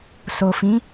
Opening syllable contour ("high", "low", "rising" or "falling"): low